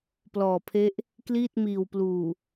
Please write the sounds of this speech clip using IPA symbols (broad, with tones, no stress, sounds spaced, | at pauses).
p l ɔː˨˩ pʰ e˦˥ ʔ | k l iː˥˩ t̚ m iː˨˩ w p l uː˨˩